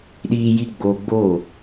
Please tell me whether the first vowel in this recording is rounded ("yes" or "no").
no